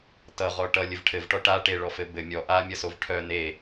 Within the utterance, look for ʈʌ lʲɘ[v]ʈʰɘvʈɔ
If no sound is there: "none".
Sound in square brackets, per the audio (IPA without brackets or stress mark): v